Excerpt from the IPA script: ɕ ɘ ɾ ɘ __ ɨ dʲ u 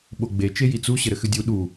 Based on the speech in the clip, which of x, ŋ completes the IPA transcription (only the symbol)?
x